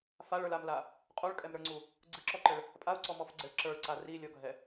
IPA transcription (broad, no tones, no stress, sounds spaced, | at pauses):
f a ɭ ə˞ l a m l a | qʼ u ɭ kʼ ɛ m ɾ ə˞ ŋ͡ǀ u | ɡ͡ǀ ɯ ǁ ɔ ǃ ɘ ɭ | pʼ a u̯ ǀ ɔ m ɔ f ɡ͡ǀ ɛ ɭ ǁ ə˞ ɭ ǀ a r i lʲ ɔ ɡʱ ɛ